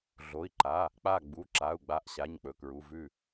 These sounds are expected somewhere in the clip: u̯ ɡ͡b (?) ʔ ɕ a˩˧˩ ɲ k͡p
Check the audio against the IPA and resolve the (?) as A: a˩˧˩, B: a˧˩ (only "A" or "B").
B